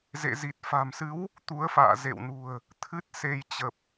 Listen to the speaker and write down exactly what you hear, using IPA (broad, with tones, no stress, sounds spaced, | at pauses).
z ḛ˧˨ z i˨˩ t̚ f a̤˨˩ m s ɨ˨˦ w | t̪ u˨˦ ə̯ f a̰ː˧˨ z ḛ˧˨ w n ṳ˨˩ ə̯ | t̪ʰ ɨ˦˥ t̚ s e˧ j t͡ɕ ə˨˩ p̚